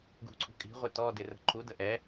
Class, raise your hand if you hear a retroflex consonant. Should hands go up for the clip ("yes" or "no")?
no